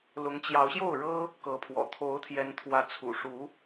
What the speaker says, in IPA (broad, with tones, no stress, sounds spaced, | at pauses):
l ʊ˧˥ ŋ t͡ɕ j ɑ˧˥ ʊ̯ ɕ j o˥˩ ʊ̯ ɻ ɤ˥ | k ɤ˧˥ pʰ w ɔ̰˨˩ t̪ʰ o˧˥ ʊ̯ t̪ʰ j ɛ˧˥ n t̪ʰ w ä˧˥ t͡sʰ ṵ˨˩ ʂ u˧˥